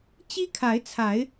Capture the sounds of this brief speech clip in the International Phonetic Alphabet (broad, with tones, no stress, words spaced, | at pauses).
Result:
t͡ɕi˦kʰa˨˦ɪ̯t͡sʰa˨˦ɪ̯